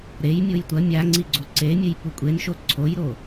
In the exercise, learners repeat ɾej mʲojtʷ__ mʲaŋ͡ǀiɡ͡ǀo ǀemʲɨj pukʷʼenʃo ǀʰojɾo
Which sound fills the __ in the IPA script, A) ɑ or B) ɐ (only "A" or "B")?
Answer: B